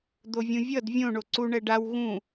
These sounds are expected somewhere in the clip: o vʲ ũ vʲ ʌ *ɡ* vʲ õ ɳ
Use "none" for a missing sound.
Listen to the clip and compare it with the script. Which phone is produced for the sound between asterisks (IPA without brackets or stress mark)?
d